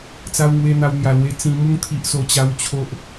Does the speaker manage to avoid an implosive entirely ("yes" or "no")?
yes